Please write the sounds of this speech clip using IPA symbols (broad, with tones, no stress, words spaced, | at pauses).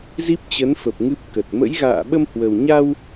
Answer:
zi˦˥p̚t͡ɕə˨˦nfə˨˩p̚ ŋɨ˦˥p̚kə˨˩t̚ mə̰˧˥jɣa̰ː˧˨ ɓə˧mhwə˨˩wɲa˧w